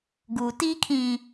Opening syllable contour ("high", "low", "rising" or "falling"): low